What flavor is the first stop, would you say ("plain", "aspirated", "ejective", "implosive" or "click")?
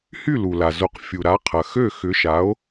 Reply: plain